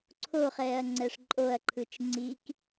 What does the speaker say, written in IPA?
ǀʰ o χ ɛː ɐ̯ ŋ͡ǀ ɛ ʂ ǃʼ o ɐ̯ ǃʰ ɯ t͡ʃ ŋ͡ǀ i k

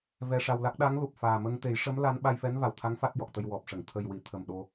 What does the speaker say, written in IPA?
v ɛ˧ ʂ a˧ w l a˦˥ k̚ ɗ a˧˥ ŋ l u˨˩ p̚ f aː˨˩ m ə˧ ŋ t̪ e˨˩˦ j ʂ ə˧˥ m l a˧˥ n ɓ a˧ j f ɛ˧˥ n v a˨˩ w t̪ʰ a˧˥ ŋ f a˦˥ t̚ j ɔ˨˩ k̚ t̪ ə˧ j w ɔ˨˩ p̚ ʂ ə˨˩˨ ŋ t̪ʰ ə˨˩ j w i˨˩˨ t̪ʰ ə˨˩ m ɗ o˧

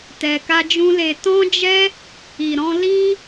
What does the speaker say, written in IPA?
t ɛ˧ k a˦ d͡ʒ ũ˦ l e˧ t ɔ̃˦ d͡ʒ ɛ˦ | i˧ ɾ ɔ̃˦ l i˦

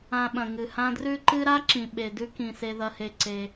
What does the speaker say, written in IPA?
ã˨ ɓ ɐ̃˩ ŋ ɨ˩ h ã˦ d r ʉ˥ ǃ ɨ˦ ɾ a˥ ǁ ĩ˩ ɓ e˩ d ʉ˦ k ĩ˩ s e˨ ð ɐ˨ h e˨ ǀ e˩

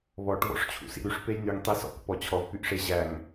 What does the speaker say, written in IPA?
β ɔ ʈ v ɔ̰ ʂ t͡ɕʰ ṵ s ḭ ɾ y ʂ p e j n y ŋ tˤ i s ɔ̰ k p ɔ t͡ɕʰ ɔ v p y ʔ ʂ e ʑ æ ŋ

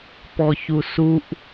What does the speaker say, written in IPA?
p ɔ ç u s u ʔ

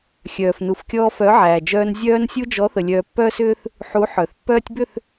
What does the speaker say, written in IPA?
xʲ œː˨ f n u˨ f kʲ ɔː˧ f œ˨˦ ʕ æː˨ d͡ʒ œː˧ n zʲ œː˧ n sʲ u˧ d͡ʒ ɔ˨˦ θ ə˨ lʲ œː˧ pː œː˦ s ʏː˦ θ | ħ u˨˦ ħ œ˨ θ pː œː˧ tʲ b ʏ˦˨ θ

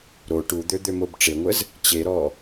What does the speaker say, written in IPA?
ɾ o ʈ u d̪ ø d̪ ø m o b ʈ͡ʂ e ŋʷ ə z | t͡ɕ e ɾ ɔ

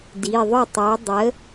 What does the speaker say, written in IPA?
d i˩˧˩ ðˤ ʊ˥˩ tˤ ø˨˥ dˤ ə˨˥

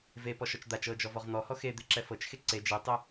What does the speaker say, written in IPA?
v e p ɔ ʃ ɔ t͡ʃ d̪ a t͡ʃ ɤ d͡ʒ ɔ v ɔ ʁ n̪ ɔ h ɔ x e d̪ e ǁ ɛ f ɤ t͡ʃ x e ǀ e d͡ʒ e tˤ e

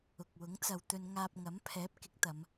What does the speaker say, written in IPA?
ʊ˨ k̚ w ʊ˨˥ ŋ t͡s ɐ˨ w t̪ ɵ˧ n ŋ aː˧ p̚ ŋ ɐ˨˥ m pʰ ɛː˨˥ p̚ k ɪ˨˥ k̚ t̪ ɐ˨˧ m

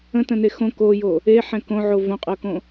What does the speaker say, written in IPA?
ə̃ t ə̃ n e x õ k o j o | e ħ ɛ̃ k õ ʕ o v õ qʼ ɤ k õ

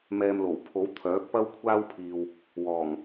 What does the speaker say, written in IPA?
m ɛː˧ m l o˨˩ w pʰ o˨˥ w t̪ʰ œː˨˥ k̚ p ɐ˥ w kʷʰ aː˥ w pʰ iː˨ w | w ɔː˨˩ ŋ

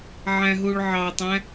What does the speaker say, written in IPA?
ʕ æ̃ ɦ u ɭ ʕ ɑ tˤ æ̃

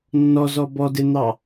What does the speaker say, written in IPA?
nː ɔ z ɔ b ɔ d e n̪ ɑ

